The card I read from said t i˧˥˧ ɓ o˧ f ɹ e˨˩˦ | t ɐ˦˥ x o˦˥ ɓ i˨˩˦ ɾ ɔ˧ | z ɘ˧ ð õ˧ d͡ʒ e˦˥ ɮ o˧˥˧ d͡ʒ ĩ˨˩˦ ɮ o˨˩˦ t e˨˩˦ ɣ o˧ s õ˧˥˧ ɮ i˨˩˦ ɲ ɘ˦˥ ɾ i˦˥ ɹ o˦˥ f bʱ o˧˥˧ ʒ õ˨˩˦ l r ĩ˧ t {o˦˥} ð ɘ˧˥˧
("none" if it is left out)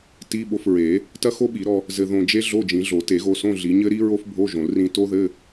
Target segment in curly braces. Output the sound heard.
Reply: o˦˥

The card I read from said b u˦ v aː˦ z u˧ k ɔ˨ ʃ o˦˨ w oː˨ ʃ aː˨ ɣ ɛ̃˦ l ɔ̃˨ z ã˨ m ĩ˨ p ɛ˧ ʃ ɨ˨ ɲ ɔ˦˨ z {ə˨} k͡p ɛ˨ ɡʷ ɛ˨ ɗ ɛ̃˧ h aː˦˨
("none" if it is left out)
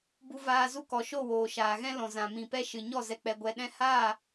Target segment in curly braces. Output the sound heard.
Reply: ɛ˨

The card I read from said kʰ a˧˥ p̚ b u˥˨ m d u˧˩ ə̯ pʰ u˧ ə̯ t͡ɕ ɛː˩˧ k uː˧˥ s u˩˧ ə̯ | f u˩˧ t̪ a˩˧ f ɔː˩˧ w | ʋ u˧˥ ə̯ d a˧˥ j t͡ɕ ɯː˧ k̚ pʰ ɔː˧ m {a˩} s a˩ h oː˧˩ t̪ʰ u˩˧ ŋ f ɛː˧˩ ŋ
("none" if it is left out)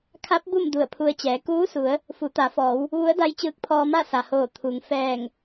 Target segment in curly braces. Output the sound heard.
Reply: a˥˨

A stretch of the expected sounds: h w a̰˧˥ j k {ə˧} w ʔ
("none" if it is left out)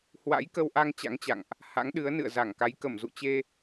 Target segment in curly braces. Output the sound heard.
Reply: ə˧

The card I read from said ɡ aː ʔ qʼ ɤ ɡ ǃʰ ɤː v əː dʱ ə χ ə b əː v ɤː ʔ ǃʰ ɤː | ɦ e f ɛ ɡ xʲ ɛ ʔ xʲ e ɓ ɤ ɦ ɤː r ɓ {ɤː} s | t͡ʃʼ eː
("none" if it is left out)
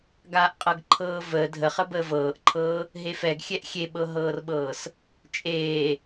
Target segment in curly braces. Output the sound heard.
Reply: ɤː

